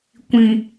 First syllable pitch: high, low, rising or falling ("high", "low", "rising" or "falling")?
low